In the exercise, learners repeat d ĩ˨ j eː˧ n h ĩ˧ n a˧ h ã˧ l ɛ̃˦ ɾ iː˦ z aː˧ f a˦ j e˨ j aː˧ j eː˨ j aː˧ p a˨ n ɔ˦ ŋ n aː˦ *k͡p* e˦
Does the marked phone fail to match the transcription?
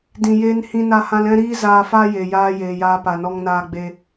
yes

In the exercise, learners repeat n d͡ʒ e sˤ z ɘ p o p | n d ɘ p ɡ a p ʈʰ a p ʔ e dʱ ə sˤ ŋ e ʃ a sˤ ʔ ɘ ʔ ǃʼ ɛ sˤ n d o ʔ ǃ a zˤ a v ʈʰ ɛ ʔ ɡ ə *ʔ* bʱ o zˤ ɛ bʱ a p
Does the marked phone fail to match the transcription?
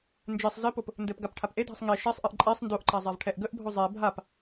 no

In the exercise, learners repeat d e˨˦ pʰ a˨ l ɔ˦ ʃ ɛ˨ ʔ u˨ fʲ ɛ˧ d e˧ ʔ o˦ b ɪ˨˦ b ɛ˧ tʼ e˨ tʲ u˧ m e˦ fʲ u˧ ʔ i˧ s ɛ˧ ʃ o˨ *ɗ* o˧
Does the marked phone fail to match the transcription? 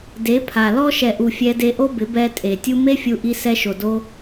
yes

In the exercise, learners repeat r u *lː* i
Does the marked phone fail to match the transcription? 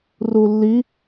no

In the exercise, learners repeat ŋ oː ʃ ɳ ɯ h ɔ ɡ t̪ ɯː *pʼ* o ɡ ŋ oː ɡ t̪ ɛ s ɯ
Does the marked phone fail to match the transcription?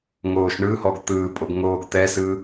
no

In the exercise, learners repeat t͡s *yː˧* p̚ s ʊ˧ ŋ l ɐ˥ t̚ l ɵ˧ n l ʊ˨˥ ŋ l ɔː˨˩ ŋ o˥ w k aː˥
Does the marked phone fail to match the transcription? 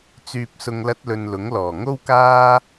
no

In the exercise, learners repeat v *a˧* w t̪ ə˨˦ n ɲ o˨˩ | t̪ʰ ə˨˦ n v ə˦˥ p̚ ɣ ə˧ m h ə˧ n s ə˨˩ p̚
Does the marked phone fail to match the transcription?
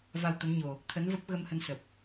no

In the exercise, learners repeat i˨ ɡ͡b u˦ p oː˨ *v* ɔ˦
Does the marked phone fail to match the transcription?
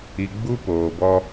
yes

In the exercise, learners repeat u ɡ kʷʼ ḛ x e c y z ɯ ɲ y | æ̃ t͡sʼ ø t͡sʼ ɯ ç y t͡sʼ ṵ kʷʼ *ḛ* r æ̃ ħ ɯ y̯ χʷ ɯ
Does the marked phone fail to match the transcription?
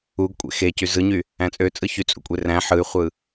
yes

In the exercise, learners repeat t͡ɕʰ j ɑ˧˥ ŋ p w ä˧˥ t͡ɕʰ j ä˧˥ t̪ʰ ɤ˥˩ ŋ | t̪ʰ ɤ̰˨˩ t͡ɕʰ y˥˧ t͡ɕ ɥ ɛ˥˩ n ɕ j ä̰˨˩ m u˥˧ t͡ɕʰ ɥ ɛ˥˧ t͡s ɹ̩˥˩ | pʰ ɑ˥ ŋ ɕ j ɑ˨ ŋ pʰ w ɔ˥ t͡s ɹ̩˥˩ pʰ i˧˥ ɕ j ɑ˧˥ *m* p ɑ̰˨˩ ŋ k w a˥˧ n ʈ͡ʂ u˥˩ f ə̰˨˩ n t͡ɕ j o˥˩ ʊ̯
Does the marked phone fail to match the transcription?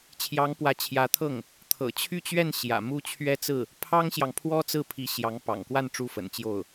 yes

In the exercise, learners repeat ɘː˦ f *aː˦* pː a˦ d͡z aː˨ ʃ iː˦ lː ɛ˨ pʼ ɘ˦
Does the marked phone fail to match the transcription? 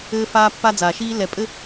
no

